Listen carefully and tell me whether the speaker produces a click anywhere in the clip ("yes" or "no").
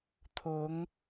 no